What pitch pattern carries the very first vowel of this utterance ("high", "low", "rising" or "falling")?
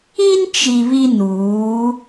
high